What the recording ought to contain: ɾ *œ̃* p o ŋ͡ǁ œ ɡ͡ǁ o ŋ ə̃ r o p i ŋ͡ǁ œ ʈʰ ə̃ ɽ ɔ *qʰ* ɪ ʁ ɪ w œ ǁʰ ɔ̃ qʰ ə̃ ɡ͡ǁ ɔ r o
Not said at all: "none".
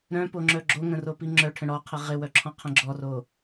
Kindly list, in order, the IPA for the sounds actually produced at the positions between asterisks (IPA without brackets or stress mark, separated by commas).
œ̃, qʰ